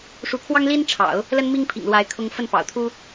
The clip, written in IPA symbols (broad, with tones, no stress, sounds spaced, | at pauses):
ʂ u˧˥ kʰ w ɑ˥ ŋ l i˥ n ʈ͡ʂʰ ɑ̰˨˩˦ ʊ̯ | l ə˥ n m i˥ ŋ pʰ ḭ˨˩ ŋ l w a˧˥ ɪ̯ kʰ ʊ˥ ŋ f ə˥˩ n p ɑ̰˨˩ ʊ̯ t̪ʰ u˥